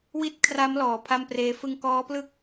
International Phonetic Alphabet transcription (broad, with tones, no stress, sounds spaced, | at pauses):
w i˥˩ t̚ kʰ r a˦˥ m l ɔː˩˦ pʰ a˥˩ m p r eː˦˥ f ɯ˧ ŋ k ɔː˦˥ p l ɯ˥˩ k̚